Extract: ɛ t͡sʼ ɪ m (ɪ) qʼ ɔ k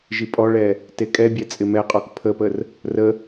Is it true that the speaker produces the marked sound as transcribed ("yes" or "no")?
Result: no